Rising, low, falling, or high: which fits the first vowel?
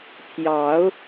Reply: rising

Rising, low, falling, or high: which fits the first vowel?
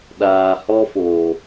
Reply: low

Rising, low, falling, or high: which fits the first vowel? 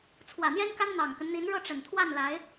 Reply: low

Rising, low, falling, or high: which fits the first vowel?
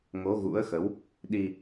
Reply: rising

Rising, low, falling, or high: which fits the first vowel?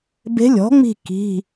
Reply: rising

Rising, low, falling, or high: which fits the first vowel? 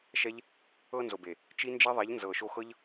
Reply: high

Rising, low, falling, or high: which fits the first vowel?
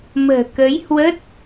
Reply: low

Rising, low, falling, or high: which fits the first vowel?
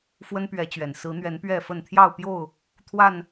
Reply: high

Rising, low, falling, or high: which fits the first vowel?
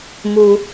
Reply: high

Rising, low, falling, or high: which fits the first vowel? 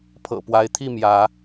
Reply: low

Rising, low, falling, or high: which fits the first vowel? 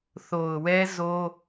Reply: low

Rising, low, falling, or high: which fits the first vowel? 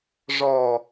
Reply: low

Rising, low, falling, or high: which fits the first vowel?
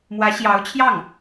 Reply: rising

